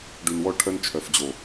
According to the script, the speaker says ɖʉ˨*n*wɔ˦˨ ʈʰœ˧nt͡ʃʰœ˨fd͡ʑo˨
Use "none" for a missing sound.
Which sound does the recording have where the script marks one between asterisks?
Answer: n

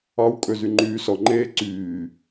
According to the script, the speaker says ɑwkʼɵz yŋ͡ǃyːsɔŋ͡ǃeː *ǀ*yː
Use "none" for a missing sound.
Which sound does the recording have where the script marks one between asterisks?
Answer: ǀ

